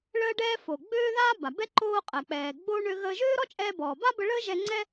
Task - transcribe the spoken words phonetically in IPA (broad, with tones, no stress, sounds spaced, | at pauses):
ɭ əː˧ ɖ ɛː˧ f o˩ ɡ͡b øː˥ ð aː˥ b a˩ b ɛ˥ ǃ oː˧ qʼ ɛ˩ k͡p ɛː˩ ɡ͡b oː˥ ɳ ø˧ ɣ əː˧ ʒ øː˥ ɾ ɔ˥ t͡ʃʼ ɛː˧ b ɔː˩ b a˥ b ə˧ ɭ əː˥ ʒ ɛ˧ ŋ͡ǀ ɛ˥